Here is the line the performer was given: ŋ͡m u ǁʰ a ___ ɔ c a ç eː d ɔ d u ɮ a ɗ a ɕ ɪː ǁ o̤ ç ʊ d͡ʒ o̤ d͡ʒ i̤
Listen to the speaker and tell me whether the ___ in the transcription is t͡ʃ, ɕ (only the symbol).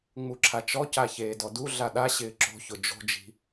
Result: t͡ʃ